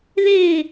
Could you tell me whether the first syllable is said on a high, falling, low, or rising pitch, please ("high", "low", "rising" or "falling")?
falling